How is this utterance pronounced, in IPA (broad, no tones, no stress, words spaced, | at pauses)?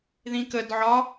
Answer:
ðĩkəd ʕɒ